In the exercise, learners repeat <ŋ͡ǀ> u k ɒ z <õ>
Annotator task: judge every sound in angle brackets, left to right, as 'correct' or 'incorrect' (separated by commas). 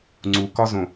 correct, correct